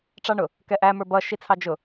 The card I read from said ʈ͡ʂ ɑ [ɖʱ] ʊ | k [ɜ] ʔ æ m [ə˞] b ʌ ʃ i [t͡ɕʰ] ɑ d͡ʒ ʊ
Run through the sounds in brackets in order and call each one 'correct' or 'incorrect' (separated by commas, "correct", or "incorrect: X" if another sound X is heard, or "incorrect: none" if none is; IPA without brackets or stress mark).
incorrect: ɳ, incorrect: ɛ, correct, incorrect: t͡sʰ